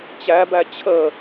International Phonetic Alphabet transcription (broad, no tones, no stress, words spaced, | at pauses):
t͡ɕæbæ t͡ɕʰə